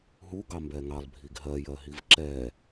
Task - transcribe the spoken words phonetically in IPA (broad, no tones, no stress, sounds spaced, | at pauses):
ɦ u ɡ ɑ m b ɛ ŋ ɑ lˠ bʱ i ɡ ɦ ɜ j ɜ ɦ i v ǁ ɛ